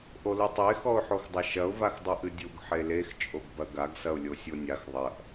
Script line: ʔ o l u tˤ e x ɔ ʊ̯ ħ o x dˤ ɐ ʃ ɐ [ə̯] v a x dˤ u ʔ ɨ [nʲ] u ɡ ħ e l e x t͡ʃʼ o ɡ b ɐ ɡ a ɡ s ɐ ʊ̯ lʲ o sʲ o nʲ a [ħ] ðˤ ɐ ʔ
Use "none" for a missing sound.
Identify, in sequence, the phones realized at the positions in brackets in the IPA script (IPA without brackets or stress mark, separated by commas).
ʊ̯, dʲ, x